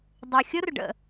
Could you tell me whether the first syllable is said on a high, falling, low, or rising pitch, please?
low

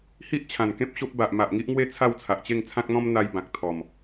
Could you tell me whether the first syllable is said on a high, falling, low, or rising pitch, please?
high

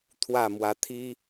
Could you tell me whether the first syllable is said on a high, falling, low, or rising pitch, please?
falling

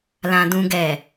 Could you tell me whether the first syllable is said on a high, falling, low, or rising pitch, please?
low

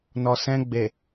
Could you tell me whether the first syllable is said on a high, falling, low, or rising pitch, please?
low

